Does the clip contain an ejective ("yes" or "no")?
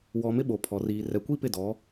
no